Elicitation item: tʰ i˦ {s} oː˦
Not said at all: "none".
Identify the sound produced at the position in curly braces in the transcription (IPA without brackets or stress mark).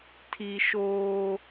ʃ